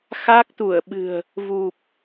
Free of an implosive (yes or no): no